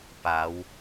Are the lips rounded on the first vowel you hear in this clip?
no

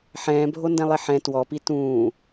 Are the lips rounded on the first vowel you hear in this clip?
no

